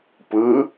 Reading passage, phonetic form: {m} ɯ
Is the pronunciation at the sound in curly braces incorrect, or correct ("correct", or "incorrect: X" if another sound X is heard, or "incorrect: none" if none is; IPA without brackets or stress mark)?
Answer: incorrect: p